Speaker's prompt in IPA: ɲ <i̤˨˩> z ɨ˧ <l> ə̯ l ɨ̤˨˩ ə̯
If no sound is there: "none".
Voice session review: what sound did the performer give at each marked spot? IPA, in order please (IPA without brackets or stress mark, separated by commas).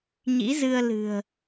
ḭ˧˥, none